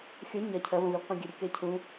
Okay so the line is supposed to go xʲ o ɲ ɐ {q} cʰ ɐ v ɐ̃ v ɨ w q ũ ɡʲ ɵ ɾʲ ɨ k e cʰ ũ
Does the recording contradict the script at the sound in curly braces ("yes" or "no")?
yes